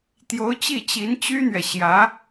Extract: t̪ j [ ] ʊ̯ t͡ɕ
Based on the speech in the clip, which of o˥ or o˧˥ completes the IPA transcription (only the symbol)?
o˧˥